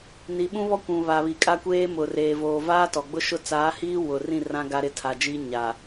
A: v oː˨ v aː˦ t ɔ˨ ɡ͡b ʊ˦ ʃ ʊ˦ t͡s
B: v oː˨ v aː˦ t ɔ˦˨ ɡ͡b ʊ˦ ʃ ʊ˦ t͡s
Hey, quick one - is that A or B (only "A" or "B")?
A